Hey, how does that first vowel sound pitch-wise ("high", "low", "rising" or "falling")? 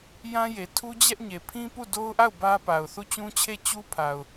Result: high